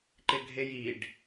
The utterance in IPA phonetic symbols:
ǃ ɪ ɡʱ e j i ɖ

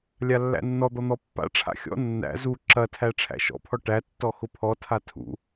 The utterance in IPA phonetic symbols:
lʲ a lː æ̰ nː ɔ d̪ ɔ n̪ ɔ pː a̰ ʈ͡ʂʰ a̰ xʲ ɔ̰ nː æ̰ z u ǁ ɐ tʰ æ ʈ͡ʂʰ æ̰ ʃ ɔ̰ pʰ ɔ ʈ æ tː ɔ x ʊ pʰ ɔ tʰ a tʰ ṵ

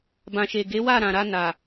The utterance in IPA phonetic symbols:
b ã˨ ʃ e˨ ɡ e˨˦ w a˦˨ ɾ ã˨ ɾ a˧ n a˨

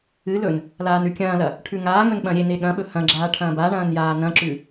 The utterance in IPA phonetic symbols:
ɨ l ɵ n | l aː n ʉ kʲ ɐ̃ː l ɐ | ʈʰ ʉ ŋ aː ŋ ɵ n ɓ ɐ̃ ɾʲ e n e ɠ ɐ̃ ɓ ɵ h ɐ̃ ɡ͡ǁ aː ʈʰ ɐ̃ː b a ɳ ɐ̃ː n j aː n ɐ̃ ǁ ʉ

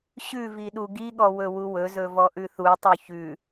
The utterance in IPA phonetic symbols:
ɕ ʉ v i ɗ u ɡ i ɠ ɔ w ɵ w u w ɵ z ɵ v ɔ ʔ ʉ θ u tˤ u ç ʉ

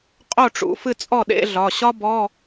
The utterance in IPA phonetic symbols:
qʼ o˥˩ ʈ͡ʂ ṵ˩˧˩ f ɨ˥˩ t͡sʼ ɔ˥˩ ɗ ḛ˧˥˧ ɮ ɒ˩˧˩ ɕ ɒ˥ b ɔ˧˥˧

